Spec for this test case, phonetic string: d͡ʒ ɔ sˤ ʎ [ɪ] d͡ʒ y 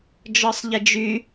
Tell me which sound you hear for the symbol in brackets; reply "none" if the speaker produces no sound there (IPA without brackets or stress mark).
ɪ